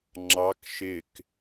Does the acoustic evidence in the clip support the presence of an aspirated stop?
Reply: no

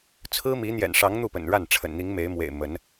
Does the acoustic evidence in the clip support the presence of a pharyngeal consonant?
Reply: no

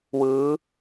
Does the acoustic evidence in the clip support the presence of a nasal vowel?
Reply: no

